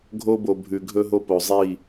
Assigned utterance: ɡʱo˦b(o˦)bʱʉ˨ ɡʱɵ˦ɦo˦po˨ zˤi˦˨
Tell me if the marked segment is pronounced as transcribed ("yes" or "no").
no